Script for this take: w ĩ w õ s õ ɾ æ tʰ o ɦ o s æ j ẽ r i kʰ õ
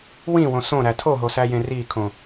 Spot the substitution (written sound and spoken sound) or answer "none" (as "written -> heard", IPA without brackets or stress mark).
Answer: none